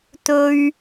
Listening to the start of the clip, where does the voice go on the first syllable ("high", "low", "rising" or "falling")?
high